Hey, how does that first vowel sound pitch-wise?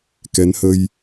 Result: rising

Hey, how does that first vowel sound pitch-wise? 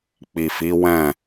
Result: low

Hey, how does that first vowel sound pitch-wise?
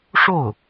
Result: falling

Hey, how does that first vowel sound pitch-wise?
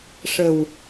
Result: low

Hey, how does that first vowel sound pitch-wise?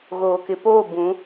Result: low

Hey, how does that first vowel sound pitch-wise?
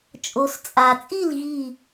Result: low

